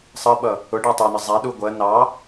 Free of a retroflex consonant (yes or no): no